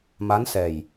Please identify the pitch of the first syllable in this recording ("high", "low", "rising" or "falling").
rising